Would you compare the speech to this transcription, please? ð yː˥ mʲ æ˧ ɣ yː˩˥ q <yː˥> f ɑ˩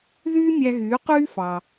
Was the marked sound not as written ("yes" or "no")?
no